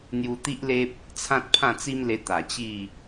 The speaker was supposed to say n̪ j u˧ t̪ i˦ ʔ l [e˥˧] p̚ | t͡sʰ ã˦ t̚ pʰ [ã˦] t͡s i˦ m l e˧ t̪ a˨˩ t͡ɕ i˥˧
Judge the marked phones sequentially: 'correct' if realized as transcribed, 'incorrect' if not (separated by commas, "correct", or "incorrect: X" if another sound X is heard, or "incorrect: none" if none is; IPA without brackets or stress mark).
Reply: incorrect: e˦, incorrect: ã˥˧